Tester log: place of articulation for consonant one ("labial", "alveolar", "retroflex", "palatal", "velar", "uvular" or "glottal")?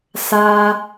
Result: alveolar